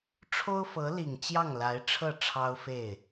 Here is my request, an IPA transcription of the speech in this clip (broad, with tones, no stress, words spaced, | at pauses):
ʈ͡ʂʰo˥ʊ̯fɤ˧˥li˨˩ŋ t͡ɕjɑ˥˩ŋla˧˥ɪ̯ʈ͡ʂʰɤ˥˩ ʈ͡ʂʰɑ˥ʊ̯fe˥˩ɪ̯